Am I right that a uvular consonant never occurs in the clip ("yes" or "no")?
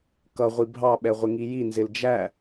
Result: no